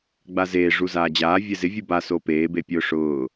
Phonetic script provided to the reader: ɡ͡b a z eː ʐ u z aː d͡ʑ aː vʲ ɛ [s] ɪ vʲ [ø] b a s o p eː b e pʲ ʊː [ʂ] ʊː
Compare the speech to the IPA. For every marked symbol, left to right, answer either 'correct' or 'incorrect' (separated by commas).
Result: incorrect, incorrect, correct